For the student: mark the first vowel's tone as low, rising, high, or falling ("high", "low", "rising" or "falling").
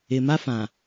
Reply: low